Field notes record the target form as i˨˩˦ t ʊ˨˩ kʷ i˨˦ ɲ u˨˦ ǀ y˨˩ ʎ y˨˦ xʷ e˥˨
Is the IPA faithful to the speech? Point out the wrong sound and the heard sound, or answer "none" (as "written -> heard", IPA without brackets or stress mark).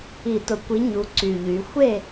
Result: none